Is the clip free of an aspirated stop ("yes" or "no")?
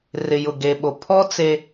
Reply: no